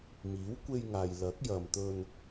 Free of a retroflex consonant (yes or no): yes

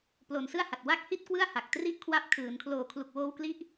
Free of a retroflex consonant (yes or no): yes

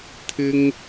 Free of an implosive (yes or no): yes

